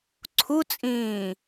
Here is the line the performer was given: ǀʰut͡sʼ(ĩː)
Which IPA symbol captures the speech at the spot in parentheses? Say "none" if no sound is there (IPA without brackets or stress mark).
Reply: ĩː